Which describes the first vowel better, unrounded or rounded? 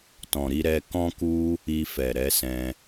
rounded